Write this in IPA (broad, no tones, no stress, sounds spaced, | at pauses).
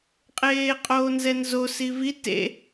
qʼ eː qʼ oː n z ɛ n z o s i v i t ḛ